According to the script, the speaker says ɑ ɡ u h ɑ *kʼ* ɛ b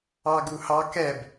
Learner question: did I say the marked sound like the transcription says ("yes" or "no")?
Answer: no